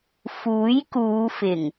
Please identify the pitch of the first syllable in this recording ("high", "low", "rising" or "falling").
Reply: rising